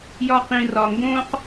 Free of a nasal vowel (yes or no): no